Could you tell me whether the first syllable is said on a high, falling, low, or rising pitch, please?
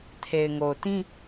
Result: low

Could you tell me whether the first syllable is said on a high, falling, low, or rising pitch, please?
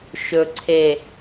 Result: low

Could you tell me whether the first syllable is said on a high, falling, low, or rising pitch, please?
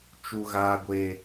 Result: high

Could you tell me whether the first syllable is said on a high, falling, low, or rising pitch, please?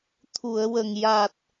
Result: low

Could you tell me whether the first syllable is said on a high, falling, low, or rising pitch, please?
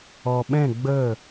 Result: low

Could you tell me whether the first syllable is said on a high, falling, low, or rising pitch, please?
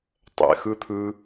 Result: low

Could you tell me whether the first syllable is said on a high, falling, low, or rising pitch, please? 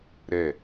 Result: falling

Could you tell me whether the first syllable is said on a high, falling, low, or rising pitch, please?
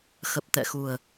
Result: low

